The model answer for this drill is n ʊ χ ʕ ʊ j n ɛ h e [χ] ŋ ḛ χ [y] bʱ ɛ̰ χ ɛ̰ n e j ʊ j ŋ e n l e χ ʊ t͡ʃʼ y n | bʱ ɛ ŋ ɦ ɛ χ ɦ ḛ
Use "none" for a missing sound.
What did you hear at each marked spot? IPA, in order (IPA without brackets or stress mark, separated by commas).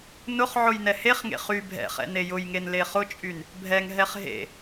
χ, y